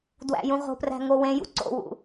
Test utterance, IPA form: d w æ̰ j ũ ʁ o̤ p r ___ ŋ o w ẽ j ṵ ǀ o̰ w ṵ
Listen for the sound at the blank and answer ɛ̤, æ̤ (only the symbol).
æ̤